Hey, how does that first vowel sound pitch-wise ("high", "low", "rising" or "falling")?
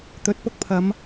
rising